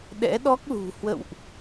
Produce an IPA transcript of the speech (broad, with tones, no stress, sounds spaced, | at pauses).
ɗ ɛ̰˧˥ ɗ ɔ˦˥ k̚ l ṳ˨˩ h w ə̰˧˨ w ʔ